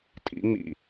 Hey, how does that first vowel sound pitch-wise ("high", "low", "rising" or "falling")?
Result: rising